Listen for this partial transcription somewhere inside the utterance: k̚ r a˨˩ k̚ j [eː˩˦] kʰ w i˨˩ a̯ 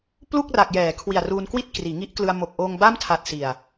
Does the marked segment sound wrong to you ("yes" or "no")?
yes